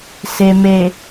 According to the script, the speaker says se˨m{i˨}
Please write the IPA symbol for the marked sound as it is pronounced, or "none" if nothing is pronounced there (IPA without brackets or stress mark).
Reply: e˨